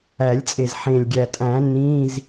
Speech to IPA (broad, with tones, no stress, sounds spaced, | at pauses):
æ˨˩˦ lʲ t͡sʼ e˨˩ z ħ ẽ˨˩ lʲ ɡʲ æ˨˩ tʼ æ̃˨˩˦ n ĩ˧˥˧ z